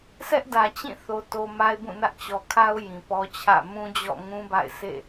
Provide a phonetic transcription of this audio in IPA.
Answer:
s ɛ˦ ʔ d ä˨ t͡ɕ ĩ˦˨ θ o˦ t o˦ m a˦ ɪ̯ b ũ˦˨ n ä˦ ʔ t͡ɕ ɔ˨ kʰ a˦ ʊ̯ j ĩ˨ p ɔ˦ t͡ɕʰ ä̰˦˨ m ũ˦ d͡ʑ ɔ̰˦˨ ŋ ũ˦ b a̰˦˨ ɪ̯ sʰ ḛ˦˨

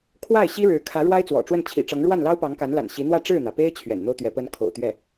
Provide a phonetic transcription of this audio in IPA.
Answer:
kʰ w a˥˩ ɪ̯ ɕ i˥ ɻ ɻ̩˧˥ kʰ ä˧˥ ɻ w a˥ ɪ̯ t͡s w ɔ̰˨˩ ʈ͡ʂ w ə˥˩ n t͡ɕʰ ḭ˨˩ ʈ͡ʂ ɤ˧˥ ŋ ɻ w a˥˩ n l ɑ˥ ʊ̯ p ɑ˧˥ ŋ k a˧˥ n l a̰˨˩ n ɕ i˧˥ n̪ w ä˥˧ ʈ͡ʂ ɻ̩˥˩ n̪ ä˩ p e˥ ɪ̯ t͡ɕʰ ɥ ɛ̰˨˩ n n̪ o˥ ʊ̯ t̪ ɥ ɛ˧˥ p ə˥ n kʰ o̰˨˩ ʊ̯ t̪ ɥ ɛ˥˩

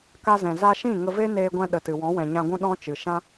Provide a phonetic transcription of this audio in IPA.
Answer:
k a˧ z ɛ̃˨ z a˧ ʃ ĩ˦˨ ŋ ə˧ v e˦ n eː˧ ɡʷ ɛ̃˧ ɗ ə˨ t ɨ˨ w ɔ̃˨˦ w ɛ̃˨ ɲ ã˧ ɡʷ ũ˦ ɗ ɔ̃˦ t͡ʃ ɨ˨ ʃ ã˦

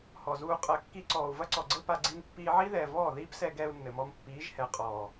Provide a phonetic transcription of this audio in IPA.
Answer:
h ɔ˨ z uː˧ qʼ ɐ˨ kː i˧ ǀ ɔː˨ u̯ v ɐ˦ ǀ ɔ˨ ɡ͡ǀ ɘ˦ p a˧ ɡ͡ǀ i˧ n pː iː˧ ʕ i˦ ð ɛː˨ v ɔː˦˨ ð iː˦ p s ɛ˧ ɡ ɛː˧ u̯ nː ɘ˨ m ɔ˧ m pː iː˨˦ ʒ h ɛ˨ qʼ ɔː˨

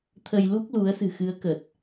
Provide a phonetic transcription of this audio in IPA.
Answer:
t̪ʰ ə˧ j l u˦˥ k̚ l u˨˦ ə̯ s ɨ̤˨˩ x ɨ˨˦ ə̯ k ə˨˩ t̚

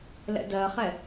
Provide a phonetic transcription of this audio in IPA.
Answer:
l ɛ̰ d ɜ χ ɛ

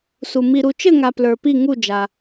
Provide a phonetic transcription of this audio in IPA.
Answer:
s u˨ m i˨ ɾ u˨ t͡ʃ ɘ˥˨ ŋ a˨ p l ə˞˨ p i˥˨ ŋ u˥˨ d͡ʒ a˨

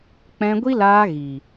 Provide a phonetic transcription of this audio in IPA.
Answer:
k͡p ɛ̃˧ ɡʷ i˦ l aː˧ ɣ i˨

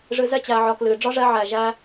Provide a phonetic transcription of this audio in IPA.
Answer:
ʐ ɨ˧ z ɛ˦ t͡ɕ æ˧ ʕ ɒ˧ k l ɨ˨ ɖ͡ʐ ɒ˦ ʐ ɛ˧ ʕ æ˨ ʒ æ˧

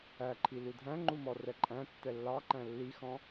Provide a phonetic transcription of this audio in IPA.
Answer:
æ ǃʰ i l u dʱ æ̃ ŋ͡ǃ u m ɔ r ɛ ǃʼ æ̃ tː ɛ lː ɑ ǃ æ̃ lː i x ɔ̃

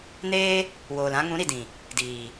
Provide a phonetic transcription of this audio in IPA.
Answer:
n eː˦ | w oː˨ l ã˧ ŋ ũ˨˦ ɾ i˨ d ĩ˨ | d iː˨

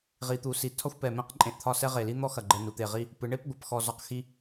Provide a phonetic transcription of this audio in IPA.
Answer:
ʁ i˩˧ t̪ u˩˧ s i˩˧ tʰ ɒ˥ xʷ p ɛ˧˩ m ẽ˥˧ q ǃʼ ẽ˧˩ ʔ t̪ʰ ɒ˥˧ s ɛ˥ ʁ e˧˩ l i˥ n̪ ɔ˥ x ɐ˧˩ ɡ͡ǃ ɛ˧ n u˩˧ t̪ e˧˩ ʁ i˥˧ | p ɨ˩˧ ɳ e˥˧ p ɡʷ ʌ˩˧ p x ɔ˧ z ɒ˧ q x i˧

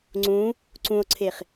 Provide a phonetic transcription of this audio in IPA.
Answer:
ŋ͡ǀ ũ | ǀ ũ o̯ ǀʰ e χ

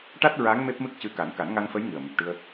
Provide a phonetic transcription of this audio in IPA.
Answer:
ʈ a˦˥ t̚ ɹ a˧˥ ŋ m e˦˥ p̚ m ɨ˦˥ k̚ c ɨ˧ k a˨˩˦ n k a˨˩˦ n ŋ a˧ ŋ f ə˧˥ j ŋ ɨ˨˩ ə̯ m ɨ˨˩ p̚ ʈ ɨ˧ ə̯

